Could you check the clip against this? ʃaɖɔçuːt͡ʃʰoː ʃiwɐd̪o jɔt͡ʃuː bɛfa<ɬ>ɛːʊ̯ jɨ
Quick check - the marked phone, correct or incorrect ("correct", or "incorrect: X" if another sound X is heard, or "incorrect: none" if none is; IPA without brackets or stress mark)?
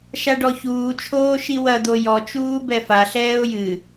correct